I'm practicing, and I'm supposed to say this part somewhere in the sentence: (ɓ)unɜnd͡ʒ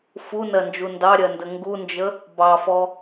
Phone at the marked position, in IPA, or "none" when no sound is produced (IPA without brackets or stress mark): f